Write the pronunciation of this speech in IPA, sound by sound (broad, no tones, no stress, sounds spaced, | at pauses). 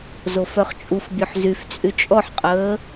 z o f œ χ t͡ʃʼ u f bʲ ø ħ z y f t͡sʼ y t͡ʃʼ ɔ ħ qʼ əː